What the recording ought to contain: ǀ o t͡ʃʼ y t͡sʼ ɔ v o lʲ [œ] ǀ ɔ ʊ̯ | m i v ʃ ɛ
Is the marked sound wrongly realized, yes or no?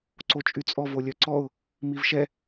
no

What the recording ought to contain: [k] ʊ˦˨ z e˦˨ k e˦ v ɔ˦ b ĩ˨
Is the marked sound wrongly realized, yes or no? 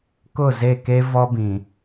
no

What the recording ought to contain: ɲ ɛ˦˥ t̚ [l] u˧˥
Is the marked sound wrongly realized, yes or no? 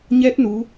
yes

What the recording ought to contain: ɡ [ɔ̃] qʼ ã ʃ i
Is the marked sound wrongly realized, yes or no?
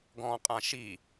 no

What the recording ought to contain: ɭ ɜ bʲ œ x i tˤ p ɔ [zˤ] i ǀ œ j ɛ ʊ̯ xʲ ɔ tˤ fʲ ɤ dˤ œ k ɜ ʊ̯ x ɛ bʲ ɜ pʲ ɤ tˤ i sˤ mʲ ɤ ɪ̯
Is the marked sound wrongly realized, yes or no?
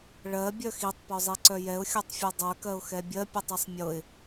no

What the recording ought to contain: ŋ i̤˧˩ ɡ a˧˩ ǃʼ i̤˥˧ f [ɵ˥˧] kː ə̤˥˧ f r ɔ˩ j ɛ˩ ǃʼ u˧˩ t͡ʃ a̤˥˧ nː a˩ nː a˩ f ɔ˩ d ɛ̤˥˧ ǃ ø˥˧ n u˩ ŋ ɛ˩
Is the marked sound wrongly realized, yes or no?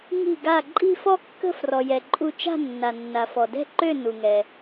yes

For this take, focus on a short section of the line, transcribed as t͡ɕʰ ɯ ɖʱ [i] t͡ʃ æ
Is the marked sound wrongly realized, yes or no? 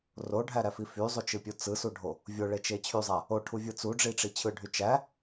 yes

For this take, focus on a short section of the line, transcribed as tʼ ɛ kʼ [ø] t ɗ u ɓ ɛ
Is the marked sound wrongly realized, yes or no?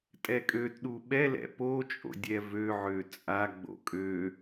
no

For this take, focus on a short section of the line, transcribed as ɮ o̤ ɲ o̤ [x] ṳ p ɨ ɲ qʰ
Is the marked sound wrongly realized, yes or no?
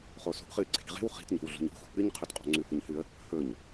no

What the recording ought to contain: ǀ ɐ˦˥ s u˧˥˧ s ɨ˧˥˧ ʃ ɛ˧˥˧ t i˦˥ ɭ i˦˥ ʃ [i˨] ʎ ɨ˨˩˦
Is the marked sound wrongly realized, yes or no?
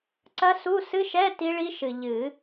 yes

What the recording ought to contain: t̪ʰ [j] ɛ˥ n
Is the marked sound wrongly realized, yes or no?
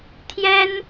no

